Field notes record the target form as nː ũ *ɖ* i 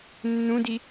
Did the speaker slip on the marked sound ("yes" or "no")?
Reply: yes